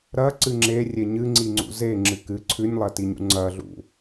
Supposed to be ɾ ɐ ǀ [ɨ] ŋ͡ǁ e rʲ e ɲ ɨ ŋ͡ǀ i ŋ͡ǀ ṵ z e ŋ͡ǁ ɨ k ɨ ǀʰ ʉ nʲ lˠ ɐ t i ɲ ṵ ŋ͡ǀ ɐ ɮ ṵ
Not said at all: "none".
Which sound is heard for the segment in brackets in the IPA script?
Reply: ɨ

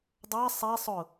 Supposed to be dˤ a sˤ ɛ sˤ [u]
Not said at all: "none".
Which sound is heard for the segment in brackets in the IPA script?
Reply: ʊ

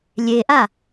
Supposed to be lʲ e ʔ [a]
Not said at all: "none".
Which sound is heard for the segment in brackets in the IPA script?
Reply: a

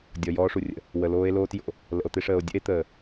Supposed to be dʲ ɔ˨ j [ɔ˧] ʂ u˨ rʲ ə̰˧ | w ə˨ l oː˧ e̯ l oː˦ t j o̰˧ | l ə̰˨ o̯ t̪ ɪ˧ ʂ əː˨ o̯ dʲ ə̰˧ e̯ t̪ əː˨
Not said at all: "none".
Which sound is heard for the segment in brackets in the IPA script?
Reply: ɔː˧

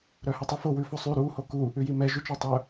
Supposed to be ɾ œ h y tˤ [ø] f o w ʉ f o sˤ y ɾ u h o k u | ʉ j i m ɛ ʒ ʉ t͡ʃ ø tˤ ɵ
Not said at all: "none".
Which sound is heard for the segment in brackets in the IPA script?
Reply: ʉ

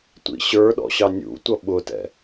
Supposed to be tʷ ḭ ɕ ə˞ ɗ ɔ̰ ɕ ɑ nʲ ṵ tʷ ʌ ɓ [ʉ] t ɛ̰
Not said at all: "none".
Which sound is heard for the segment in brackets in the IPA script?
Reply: ʊ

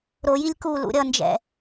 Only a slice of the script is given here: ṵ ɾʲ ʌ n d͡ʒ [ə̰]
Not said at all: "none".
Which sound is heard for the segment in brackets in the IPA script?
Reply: ɛ̰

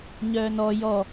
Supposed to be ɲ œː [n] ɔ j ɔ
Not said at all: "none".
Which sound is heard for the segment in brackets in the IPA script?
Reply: n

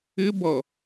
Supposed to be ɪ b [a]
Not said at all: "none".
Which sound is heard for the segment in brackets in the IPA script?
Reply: ʌ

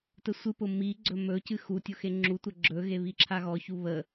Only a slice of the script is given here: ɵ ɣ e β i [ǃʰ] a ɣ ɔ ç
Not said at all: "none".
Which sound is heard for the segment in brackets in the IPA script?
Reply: ǁʰ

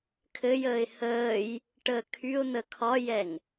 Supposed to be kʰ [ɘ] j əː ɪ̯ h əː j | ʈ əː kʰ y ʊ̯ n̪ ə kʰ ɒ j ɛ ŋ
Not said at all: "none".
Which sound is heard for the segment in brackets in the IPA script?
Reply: ɘ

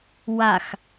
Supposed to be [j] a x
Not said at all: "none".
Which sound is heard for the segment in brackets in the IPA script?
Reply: w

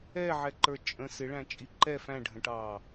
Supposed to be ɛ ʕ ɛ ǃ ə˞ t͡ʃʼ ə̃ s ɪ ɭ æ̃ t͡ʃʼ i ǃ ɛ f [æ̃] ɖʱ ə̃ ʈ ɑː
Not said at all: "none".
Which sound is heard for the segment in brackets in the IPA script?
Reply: æ̃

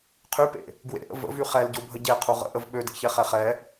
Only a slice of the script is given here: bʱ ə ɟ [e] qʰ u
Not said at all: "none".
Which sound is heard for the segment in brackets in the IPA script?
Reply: e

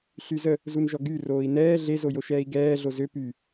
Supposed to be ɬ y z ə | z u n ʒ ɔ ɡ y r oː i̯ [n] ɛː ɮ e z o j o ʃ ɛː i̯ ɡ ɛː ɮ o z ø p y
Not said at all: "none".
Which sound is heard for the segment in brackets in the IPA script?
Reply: n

